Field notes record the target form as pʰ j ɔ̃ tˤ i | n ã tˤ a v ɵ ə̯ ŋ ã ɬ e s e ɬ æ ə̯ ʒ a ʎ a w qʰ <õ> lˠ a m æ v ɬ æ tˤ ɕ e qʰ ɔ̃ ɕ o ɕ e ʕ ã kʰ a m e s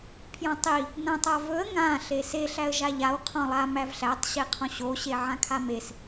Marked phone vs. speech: incorrect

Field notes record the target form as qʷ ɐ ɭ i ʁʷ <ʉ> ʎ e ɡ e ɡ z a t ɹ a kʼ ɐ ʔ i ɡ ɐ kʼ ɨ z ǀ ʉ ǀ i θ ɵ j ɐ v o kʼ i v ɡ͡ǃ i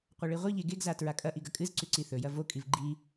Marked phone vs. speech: incorrect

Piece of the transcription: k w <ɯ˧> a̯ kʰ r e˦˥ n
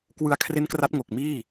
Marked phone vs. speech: correct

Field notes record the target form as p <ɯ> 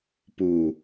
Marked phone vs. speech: incorrect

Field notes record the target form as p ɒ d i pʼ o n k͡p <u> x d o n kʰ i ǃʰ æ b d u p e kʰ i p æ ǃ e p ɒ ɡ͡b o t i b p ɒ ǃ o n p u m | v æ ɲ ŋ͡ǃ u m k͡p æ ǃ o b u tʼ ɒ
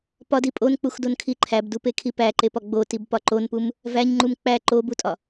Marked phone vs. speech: correct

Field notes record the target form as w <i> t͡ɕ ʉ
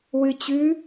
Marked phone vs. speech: incorrect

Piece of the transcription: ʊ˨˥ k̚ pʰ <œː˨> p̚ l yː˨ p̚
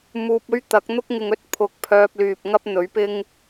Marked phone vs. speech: incorrect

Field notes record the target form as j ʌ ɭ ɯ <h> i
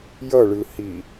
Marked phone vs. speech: correct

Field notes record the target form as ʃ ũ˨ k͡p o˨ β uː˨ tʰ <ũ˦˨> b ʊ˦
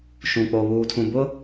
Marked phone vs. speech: incorrect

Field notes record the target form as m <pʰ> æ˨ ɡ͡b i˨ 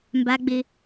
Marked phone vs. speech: incorrect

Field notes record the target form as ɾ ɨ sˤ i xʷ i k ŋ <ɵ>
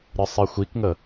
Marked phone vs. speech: incorrect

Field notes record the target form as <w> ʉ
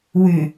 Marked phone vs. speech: correct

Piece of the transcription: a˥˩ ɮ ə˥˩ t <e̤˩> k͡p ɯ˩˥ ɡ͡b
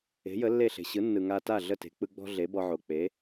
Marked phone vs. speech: incorrect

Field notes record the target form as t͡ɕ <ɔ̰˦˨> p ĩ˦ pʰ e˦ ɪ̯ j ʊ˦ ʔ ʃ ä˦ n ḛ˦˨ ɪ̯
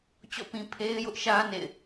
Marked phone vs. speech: correct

